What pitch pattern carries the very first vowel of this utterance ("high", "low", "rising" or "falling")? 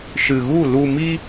low